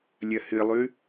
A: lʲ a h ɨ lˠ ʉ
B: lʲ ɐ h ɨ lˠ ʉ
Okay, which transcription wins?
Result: B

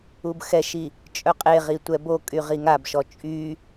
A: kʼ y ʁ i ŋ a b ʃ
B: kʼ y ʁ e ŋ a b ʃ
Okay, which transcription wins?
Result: A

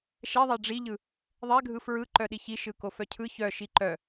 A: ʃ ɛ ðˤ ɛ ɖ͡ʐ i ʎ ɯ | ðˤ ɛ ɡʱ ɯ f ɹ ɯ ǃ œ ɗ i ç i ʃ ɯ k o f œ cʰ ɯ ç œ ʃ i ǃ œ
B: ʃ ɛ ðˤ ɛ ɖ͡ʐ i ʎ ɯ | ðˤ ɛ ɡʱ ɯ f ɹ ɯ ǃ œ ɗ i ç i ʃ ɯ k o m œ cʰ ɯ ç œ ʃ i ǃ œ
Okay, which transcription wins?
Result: A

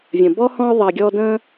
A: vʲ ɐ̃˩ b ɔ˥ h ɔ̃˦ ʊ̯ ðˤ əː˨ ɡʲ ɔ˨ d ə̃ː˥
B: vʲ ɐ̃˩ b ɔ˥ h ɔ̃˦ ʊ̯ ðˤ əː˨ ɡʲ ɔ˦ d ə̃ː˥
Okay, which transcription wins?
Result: B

